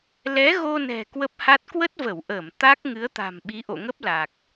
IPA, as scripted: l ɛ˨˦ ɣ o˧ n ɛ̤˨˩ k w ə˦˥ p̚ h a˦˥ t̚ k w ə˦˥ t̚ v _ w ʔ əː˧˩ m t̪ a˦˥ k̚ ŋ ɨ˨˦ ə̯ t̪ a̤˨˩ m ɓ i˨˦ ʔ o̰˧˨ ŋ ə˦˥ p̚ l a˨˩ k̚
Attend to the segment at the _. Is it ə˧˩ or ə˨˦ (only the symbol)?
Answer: ə˧˩